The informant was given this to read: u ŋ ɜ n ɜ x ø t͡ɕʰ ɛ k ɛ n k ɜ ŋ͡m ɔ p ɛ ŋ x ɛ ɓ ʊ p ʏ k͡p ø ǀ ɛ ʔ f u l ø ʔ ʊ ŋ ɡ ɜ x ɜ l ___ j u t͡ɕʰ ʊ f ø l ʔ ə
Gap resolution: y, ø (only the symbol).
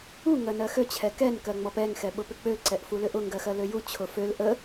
ø